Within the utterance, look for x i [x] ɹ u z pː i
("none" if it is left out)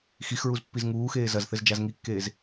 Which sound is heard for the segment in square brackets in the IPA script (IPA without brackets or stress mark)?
x